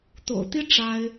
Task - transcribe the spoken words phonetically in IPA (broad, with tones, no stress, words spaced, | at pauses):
t̪o̰˨˩ʊ̯t̪i˥ ʈ͡ʂa˥ɪ̯